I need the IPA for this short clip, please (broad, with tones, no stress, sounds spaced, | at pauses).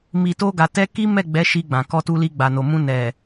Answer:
m i˨ t o˧ ɡ a˨ t ɛ˧ k i˦ m ɛ˦˨ ɡ͡b ɛ˨˦ ʃ i˧ ɡ͡b ã˨ k ɔ˧ t u˧ l i˧ ɡ͡b a˨ n o˨ m ũ˧ n ɛ˨